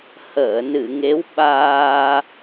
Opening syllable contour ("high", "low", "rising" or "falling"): low